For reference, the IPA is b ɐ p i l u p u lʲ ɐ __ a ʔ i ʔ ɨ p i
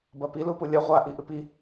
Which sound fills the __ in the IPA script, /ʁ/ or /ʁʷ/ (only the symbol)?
ʁʷ